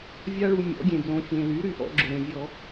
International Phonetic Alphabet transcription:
vʲ a˧ ɭ u˩ mʲ ɔ̰˩˧ ɡʲ ẽ˩ b l õ˩˧ fʲ ẽ˩ l y˩˧ ɾ y˩ ʔ ɔ̰˧ ɡ͡ǁ ʊ˩ ɾ ẽ˩ vʲ ɔ˧˩˧

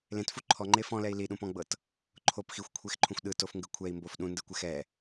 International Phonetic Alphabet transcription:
l ẽ t f u ǃʰ ɔ ŋ͡ǃ e f ɔ̃ l ɛ i̯ l i ɗ ũ p ɔ̃ ɡ͡b ɤ t | ǃʰ o p x i xʷ kʷʰ e x ǃʰ ũ xʷ ɗ ɯ t o f ŋ ɡ ɯ kʷʰ ɛ i̯ m b o f ɗ ũ n d ɯ kʷ ɛ x ɛ

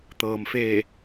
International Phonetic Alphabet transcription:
t̪ ɤː˩ m f eː˧˩

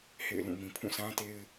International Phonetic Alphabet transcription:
h ḛ˦˨ ɪ̯ l ũ˦˨ m ĩ˨ pʰ ũ˦˨ s ã˦ t e˦ ɪ̯

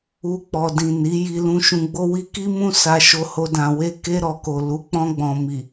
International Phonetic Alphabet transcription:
u˧ k͡p ɔ˨ d ĩ˨ n i˨˦ j i˧ l ũ˧ ʃ ũ˧ ɡ͡b o˦ w i˧ k i˦ m ũ˦ s a˧ ʃ o˧ h o˧ d ã˨ w e˧ k e˧ ɾ ɔ˨ k o˨ l u˨˦ k͡p ɔ̃˧ ɡ͡b ɔ̃˨ m i˨

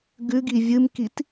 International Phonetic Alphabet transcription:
ɡ ʉ ɡ i vʲ ɨ m k i t

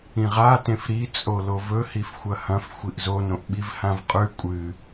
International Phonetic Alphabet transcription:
ĩ ʁ a t ẽ f ɾ i t͡sʼ o l o v ɵ h i f xʷ ɐ h ɐ̃ f xʷ i ʔ z o n õ ʔ ɓ i v h ã v qʼ ʉ kʷʼ ɨ

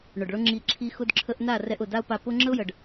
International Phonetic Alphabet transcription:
ɳ ʊ˨ ɖ ɭ ʊ˦ ŋ͡ǁ i˧ ǁʰ i˧ x ʊ˦ d ǁʰ ə˦ ʔ n a˦˨ r ɛ˧ ʔ ʊ˨ d a˦ ʊ̯ p a˧ p ʊ˦ ŋ͡ǁ ə˦ ʊ̯ j ə˨ ɖ

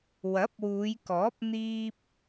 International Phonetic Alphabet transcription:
w ɐ˨˥ p̚ w uː˨˧ j k ɔː˨˥ p̚ n̪ iː˥ p̚

